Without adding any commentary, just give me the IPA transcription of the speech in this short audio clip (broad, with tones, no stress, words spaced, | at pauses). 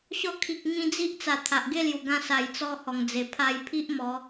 ɕɔ˧kʰi˨k̚ ŋĩ˧d͡zi˦ʔt͡sa˨˩ t̪ʰa˨ʔɡe˥˧lju˨˩ɡã˧ sa˨˩jt͡sɔ˧ hɔ˨˩ŋd͡ze˨˩ pʰa˧jpʰi˦ʔ mɔ˨˦